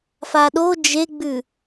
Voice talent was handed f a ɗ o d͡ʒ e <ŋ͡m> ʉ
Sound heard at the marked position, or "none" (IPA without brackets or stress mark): ɡ͡b